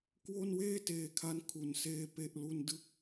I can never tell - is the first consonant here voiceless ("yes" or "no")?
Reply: yes